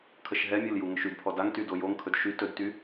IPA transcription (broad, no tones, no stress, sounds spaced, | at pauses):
kʰ ə ʃ ɦ ɛ mʲ o l j u ŋ ɵ ʃ y d pʰ ɔ d a ŋ t y d o j o ŋ kʰ ɵ d ʃ y t ɵ d t y